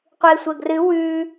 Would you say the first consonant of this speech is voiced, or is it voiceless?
voiceless